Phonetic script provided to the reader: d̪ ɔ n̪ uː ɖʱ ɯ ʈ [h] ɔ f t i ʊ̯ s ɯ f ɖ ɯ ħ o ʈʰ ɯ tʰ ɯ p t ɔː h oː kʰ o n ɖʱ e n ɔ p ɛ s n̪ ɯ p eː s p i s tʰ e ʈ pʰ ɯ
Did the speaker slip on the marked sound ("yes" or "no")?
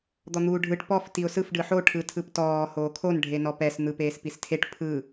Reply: yes